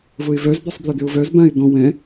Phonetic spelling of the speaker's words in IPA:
v ʊ ɪ̯ v œ z d̪ œ sˤ b l ʏ d̪ ʏ ʊ̯ v œ z b ã ɪ̯ d̪ ɔ̃ w ɛ̃

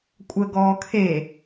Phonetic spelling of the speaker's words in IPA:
kʷʼ ə ɡ ɔː kʰ e

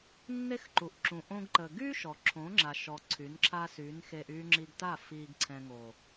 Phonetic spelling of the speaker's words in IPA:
nː e˦ x ǃ u˨ ʔ ǁ ũ˨ ʔ õ˦ ɡ ǃ ə˨ ɡ yː˦ ʃ ɔ˨ ǁʰ õ˨˦ ŋ͡ǁ a˨ ʃ ɔ˨ ǀʰ y˨˦ n ǁʰ a˦ s y˨˦ n x e˧ ʔ yː˧ ŋ͡ǁ i˧ ɡ t a˦˨ f iː˨ ɡ ǀʰ ɛ̃˨ ŋ o˨

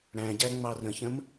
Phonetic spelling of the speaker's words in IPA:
ɽ æ̃ ɟ æ ŋ͡m ɑ r ə̃ ç ə̃ m

